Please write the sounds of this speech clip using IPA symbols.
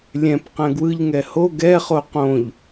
lʲɛ̃p qɛ̃ɡwɯʎŋɛ ho ɡɛχo qõʎ

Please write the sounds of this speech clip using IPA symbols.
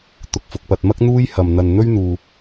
t̪ʊ˧k̚fʊ˧k̚pɐ˧t̚mɐ˥k̚ n̪uː˥jhɐ˧m n̪ɐ˧n n̪ɵ˥ɥ n̪uː˧

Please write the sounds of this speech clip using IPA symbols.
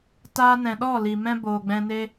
taː˧nɛ̃˨ɗɔ˦˨ li˨mɛ̃˦ boː˨ɡ͡bɛ̃˧ne˦

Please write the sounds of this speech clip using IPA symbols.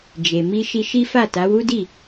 d͡ʒe˨ mi˧ʃi˧ ʃi˦fa˦˨ta˨˦ wu˦di˦˨

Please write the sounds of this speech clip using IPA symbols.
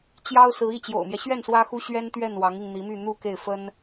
t͡ɕjɑ˥ʊ̯sɹ̩˧˥i˥˩ t͡ɕjo̰˨˩ʊ̯mjɛ˦ɕɥɛ˥˩n swä˥xu˥ ɕɥɛ˥nt̪ɥɛ˥˩n wɑ˧˥ŋi˧ŋn̪i˧˥my˥˧ n̪u˥˧ke˥˩ɪ̯ fə˥n

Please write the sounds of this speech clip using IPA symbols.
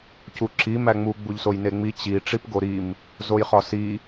cuǁi mæŋ͡mu ɡ͡buʎsojneŋ͡mi t͡ɕi ʈ͡ʂipɡoɾim | zojχɒsi

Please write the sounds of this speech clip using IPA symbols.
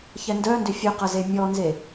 çɛndœndʏ fʲœqɐze mʲɔnze

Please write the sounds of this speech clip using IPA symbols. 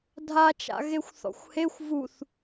dʱat͡ʃa̰ɣexʷθɔ̰xʷ hexʷ vuθ

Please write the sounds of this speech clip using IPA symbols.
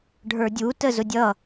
ɖʱə˞dʲutə zʊdʲʌ

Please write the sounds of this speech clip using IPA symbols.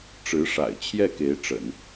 ʈ͡ʂɻ̩˧˥ʂa̰˨˩ɪ̯ t͡ɕʰjɛ˥˩ke˧˥ɪ̯ʈ͡ʂə̰˨˩˦n

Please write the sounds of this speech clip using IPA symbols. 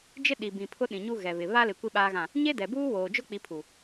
d͡ʒɪ˦ ɗi˨bĩ˨ pʰʊ˦ɗĩ˨ɲu˦ɣɛ˨ βɪ˨ βa˦lɪ˨ kʷi˦ɓaː˦ɣã˦˨ | ɲe˦dɛ˨buː˦woː˨ d͡ʒʊ˦ k͡pi˨˦pʰu˨

